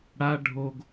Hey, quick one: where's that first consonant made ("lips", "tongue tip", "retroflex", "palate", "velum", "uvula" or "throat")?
retroflex